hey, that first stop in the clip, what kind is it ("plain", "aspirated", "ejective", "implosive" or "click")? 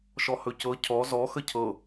plain